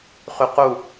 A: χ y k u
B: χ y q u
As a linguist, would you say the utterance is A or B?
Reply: B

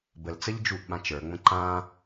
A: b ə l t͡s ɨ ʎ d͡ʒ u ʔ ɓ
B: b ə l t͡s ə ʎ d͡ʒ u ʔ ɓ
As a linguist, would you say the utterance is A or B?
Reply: B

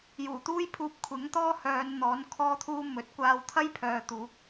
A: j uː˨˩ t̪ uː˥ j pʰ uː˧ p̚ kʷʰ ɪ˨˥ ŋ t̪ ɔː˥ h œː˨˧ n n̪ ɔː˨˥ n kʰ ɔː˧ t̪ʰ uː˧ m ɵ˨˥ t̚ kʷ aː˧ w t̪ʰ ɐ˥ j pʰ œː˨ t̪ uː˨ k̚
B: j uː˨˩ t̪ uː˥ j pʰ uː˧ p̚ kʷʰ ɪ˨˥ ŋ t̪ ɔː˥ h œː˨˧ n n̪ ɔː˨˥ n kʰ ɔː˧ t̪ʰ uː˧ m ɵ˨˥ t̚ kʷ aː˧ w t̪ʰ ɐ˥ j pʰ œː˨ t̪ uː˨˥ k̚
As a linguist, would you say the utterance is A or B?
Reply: B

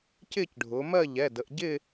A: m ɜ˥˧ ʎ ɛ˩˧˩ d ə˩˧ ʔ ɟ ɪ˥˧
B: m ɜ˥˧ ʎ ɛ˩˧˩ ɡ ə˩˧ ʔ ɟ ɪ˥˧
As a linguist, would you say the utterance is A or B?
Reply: A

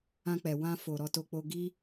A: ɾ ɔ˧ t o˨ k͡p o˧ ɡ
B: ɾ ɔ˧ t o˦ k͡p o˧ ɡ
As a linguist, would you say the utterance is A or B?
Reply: A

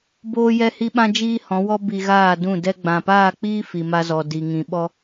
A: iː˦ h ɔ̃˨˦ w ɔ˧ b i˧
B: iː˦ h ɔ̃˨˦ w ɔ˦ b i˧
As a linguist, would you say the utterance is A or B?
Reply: B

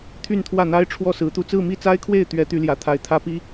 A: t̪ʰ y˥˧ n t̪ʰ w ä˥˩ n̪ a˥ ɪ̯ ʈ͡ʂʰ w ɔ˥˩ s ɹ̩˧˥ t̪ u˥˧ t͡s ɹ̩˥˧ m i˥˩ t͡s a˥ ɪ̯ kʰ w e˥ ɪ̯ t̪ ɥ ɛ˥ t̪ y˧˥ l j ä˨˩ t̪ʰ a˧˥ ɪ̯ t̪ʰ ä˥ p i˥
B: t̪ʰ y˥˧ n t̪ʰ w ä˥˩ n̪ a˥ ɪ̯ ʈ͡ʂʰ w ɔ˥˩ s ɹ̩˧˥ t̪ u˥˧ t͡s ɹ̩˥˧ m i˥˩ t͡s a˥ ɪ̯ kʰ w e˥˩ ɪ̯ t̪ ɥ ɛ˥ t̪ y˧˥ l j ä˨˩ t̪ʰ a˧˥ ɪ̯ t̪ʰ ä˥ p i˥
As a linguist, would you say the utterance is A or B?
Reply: B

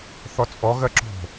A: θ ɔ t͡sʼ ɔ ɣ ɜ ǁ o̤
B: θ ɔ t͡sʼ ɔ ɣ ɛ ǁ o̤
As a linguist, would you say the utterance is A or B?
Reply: A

